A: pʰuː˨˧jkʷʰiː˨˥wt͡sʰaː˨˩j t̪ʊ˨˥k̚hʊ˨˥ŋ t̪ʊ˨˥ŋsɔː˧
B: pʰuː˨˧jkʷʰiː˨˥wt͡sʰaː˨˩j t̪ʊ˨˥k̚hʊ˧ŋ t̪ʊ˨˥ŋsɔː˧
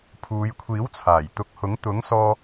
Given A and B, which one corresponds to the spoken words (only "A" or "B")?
A